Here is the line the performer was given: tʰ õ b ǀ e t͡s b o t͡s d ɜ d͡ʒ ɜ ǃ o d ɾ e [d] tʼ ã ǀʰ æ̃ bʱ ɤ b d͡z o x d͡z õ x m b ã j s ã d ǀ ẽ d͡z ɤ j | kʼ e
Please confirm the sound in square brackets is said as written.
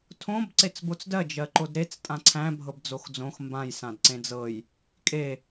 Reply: no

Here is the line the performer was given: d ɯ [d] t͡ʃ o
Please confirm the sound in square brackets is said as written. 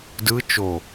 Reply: no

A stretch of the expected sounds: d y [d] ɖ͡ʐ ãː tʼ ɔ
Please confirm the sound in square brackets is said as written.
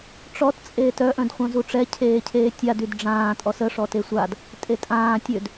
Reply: yes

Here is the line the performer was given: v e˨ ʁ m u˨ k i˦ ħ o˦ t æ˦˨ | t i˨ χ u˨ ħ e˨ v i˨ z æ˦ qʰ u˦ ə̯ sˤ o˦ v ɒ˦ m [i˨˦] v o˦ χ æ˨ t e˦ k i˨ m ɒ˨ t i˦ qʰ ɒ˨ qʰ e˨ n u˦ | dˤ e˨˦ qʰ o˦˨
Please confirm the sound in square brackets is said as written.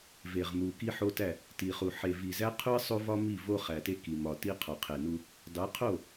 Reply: no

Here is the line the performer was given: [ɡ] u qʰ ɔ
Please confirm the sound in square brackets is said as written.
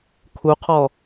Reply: no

